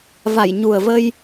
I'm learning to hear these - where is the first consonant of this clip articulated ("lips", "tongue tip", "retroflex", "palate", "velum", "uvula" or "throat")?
lips